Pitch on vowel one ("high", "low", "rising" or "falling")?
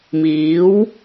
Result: rising